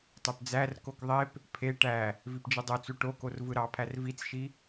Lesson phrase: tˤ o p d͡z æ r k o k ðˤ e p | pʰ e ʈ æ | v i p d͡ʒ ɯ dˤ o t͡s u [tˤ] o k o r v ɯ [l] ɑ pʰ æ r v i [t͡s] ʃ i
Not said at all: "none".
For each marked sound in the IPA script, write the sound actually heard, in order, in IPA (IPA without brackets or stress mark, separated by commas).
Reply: ʈ, ɾ, t͡s